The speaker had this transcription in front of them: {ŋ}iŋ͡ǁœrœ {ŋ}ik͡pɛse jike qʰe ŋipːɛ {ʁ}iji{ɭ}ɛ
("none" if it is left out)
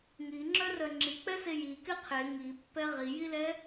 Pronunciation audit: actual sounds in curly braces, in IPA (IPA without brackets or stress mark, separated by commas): ŋ, ŋ͡ǁ, ʁ, l